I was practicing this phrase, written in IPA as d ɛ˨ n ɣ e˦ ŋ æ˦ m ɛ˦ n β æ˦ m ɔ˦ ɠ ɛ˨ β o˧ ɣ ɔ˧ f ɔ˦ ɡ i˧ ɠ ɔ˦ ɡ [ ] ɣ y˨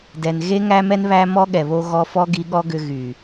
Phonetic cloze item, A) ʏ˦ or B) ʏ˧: B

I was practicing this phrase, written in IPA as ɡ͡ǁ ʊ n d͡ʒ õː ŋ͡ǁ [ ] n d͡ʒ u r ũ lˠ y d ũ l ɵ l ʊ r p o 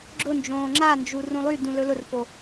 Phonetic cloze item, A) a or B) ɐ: A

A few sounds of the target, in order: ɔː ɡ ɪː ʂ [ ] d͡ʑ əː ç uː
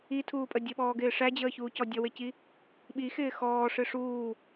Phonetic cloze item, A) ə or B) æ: B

